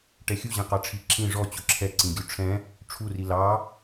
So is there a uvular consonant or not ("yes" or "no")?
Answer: yes